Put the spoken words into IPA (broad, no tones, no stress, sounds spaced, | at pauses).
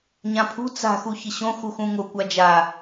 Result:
ɲ ã pʰ ṳ t͡s a̤ x u ç ɪ ɕ õ x u x ũ ŋ o kʷ a d͡ʒ a